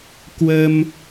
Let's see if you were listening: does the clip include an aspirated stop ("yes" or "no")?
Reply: no